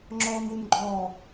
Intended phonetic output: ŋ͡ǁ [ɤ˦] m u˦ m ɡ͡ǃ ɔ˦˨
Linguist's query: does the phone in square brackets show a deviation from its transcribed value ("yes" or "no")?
yes